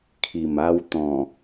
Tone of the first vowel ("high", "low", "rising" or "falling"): low